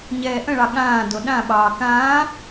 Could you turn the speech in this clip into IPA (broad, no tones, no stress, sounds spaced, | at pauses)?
ɲ ɛː ʔ ə̃ ɭ ɑ ɠ ãː d o ɗ ã ɓ ɑː k ãː